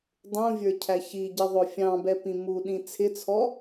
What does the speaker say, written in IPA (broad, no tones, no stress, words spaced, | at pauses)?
dˤũvʲə˞cʰæ çiɟɪðˤʊ fʲɑ̃bɛpĩ muɗĩ t͡sʰɪt͡sʰɔ